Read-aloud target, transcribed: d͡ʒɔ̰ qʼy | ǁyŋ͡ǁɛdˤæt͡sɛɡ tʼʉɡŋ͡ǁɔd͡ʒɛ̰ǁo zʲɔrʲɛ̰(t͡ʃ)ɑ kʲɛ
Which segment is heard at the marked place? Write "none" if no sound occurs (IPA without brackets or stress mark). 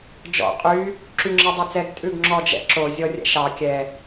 ʃ